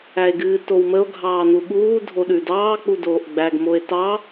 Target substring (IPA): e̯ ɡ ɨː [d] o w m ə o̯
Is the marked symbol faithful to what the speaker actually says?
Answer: no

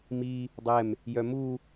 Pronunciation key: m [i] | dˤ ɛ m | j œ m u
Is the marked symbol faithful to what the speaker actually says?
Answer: yes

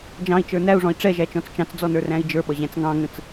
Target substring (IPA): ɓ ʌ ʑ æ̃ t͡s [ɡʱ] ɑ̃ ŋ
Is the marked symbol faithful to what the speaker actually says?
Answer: no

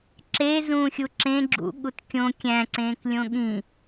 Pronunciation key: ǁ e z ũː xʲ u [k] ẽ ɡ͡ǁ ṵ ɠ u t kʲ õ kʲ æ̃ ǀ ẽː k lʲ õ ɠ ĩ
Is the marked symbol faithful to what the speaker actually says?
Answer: no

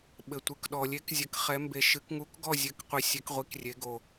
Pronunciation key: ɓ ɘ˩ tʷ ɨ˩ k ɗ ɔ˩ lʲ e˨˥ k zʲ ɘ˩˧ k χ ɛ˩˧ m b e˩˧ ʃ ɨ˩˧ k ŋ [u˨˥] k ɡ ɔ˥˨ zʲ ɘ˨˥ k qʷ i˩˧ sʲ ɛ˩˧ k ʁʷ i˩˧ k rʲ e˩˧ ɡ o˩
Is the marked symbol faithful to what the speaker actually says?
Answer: yes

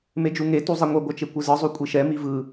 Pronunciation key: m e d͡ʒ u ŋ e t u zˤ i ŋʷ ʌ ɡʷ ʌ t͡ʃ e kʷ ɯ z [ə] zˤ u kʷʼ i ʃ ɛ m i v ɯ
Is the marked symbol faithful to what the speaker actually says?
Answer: no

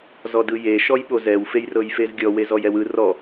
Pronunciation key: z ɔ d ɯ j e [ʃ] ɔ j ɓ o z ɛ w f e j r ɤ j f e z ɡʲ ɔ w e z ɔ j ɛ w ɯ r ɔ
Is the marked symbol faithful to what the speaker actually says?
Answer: yes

